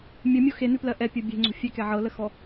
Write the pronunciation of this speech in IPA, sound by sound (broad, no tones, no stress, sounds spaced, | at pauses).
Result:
mʲ ə mʲ o x e n ʉ p l ɜ ʔ ɛ pʲ o bʲ e̤ ŋ͡ǀ o̤ fʲ ɛ k ɛ ʕ ɤ l ə x ɔ